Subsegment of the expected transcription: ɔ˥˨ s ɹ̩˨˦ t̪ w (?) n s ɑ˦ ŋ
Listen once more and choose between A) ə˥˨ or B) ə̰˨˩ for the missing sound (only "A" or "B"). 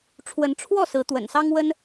B